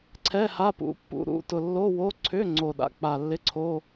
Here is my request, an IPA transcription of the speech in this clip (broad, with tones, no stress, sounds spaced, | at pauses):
ǀʰ ɛ˧˥˧ h a˧˥˧ p ṵ˧˥˧ pː ṵ˧˥˧ ɾ ṵ˧˥˧ t ʊ˨˩ lː o˧˥˧ w o˧˥˧ ǀʰ ʏ˧˥˧ ŋ͡ǀ o˨˩ ɗ a̰˧˥˧ k͡p a˨˩ lː ɪ˧˥˧ ǀʰ o˧˥˧